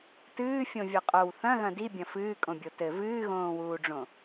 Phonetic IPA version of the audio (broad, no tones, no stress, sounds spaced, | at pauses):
t ɨː fʲ õ vʲ o qʼ o w θ ɐ̃ ɣ ɐ̃ d i bʲ ɐ̃ f ɨː kʼ õ bʲ o t ɘ v ɨː ɣ õː w uː ɖ͡ʐ õ